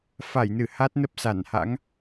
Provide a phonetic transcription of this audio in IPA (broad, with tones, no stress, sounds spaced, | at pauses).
f a˧˩ j n ɨ˧˩ h a˦˥ t̚ n ə˦˥ p̚ s a˧˩ n h a̰˧˥ ŋ